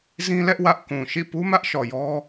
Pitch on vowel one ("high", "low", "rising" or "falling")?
high